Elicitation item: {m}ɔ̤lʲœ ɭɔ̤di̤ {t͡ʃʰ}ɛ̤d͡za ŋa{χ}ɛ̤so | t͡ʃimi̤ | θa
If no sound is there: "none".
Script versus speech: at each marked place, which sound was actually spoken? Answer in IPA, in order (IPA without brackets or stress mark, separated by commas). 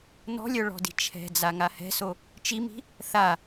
n, t͡ʃʰ, h